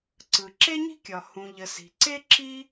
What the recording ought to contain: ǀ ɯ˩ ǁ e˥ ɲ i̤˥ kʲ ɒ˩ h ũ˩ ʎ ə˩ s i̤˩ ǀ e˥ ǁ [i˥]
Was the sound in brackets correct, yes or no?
yes